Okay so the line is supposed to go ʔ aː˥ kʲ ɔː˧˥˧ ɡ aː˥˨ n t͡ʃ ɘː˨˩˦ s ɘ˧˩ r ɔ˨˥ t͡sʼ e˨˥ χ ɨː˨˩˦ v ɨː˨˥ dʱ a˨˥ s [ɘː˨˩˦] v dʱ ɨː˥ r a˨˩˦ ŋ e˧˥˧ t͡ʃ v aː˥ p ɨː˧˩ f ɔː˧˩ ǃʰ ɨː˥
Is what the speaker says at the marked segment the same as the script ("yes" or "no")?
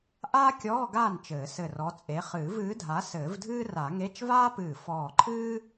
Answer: yes